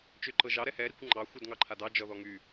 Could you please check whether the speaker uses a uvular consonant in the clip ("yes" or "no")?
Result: no